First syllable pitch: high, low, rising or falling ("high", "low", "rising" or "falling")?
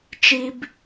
high